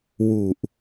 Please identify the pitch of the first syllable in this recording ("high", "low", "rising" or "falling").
low